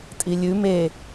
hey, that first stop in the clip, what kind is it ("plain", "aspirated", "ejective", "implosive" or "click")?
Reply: ejective